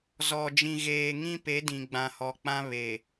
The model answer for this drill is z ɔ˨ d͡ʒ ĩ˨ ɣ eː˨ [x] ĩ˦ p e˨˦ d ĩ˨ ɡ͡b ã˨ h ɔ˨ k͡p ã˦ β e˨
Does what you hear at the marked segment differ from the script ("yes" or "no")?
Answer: yes